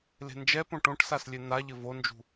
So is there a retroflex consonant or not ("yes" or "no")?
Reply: yes